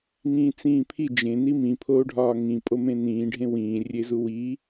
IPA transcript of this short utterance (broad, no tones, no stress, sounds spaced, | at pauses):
ŋ ĩː t͡s ĩː pʰ i d͡ʒ ẽ n i m ĩ pʰ oː ɖʱ ɒː ŋ ĩ pʼ o m ẽ n ĩː ɖʱ ẽ w ĩː rʲ e z u w i